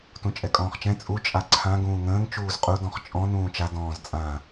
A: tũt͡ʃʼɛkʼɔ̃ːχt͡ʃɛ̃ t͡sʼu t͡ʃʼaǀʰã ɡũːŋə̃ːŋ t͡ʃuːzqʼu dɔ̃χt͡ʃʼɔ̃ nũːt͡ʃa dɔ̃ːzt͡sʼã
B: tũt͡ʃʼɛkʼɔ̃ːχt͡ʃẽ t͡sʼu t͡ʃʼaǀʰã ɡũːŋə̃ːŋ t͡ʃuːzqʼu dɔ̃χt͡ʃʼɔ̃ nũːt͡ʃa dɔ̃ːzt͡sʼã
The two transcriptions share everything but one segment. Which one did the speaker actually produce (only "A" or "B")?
A